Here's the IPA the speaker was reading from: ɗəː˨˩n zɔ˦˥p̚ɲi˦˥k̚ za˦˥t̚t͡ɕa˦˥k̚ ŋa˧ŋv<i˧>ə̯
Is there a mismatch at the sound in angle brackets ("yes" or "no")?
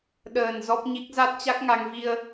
no